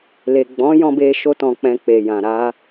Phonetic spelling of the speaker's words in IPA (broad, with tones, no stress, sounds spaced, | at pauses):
l e˨ ɡ͡b ɔ̃˨˦ j ɔ̃˧ b e˧ ʃ o˧ t ɔ̃˨ k͡p ɛ̃˧ k͡p e˨ j ã˨ ɾ a˧